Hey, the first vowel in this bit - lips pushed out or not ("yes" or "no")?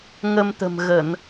no